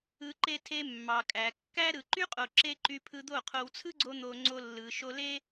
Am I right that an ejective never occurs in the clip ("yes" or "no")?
no